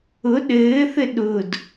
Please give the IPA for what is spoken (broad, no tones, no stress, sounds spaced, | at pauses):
ʊ ɗ ɘː θ ɘ ɗ ʊ d